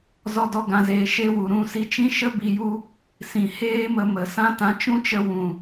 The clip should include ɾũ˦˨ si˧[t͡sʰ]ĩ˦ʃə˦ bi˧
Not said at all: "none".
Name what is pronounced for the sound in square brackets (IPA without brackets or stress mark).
t͡ʃ